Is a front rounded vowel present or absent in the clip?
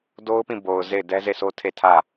absent